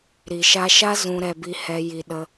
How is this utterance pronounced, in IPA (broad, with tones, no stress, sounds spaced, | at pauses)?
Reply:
ɾ i˨ ʃ a˧ ʃ a˦ z ũ˧ ɾ ɛ˧ b i˧ h ɛ˧ j i˨ ɗ ə˧